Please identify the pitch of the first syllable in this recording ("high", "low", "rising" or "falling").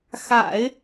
low